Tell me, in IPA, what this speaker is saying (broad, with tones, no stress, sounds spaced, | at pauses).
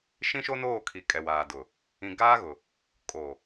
ʃ ĩ˦ ʃ o˦ n oː˦˨ kʰ i˨ kʼ ɛ˨ w aː˨ d ʊ˨ | ĩ˨ ɡ aː˦ ɣ ʊ˨ | kʼ o˨